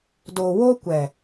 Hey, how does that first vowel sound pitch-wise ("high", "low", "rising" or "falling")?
low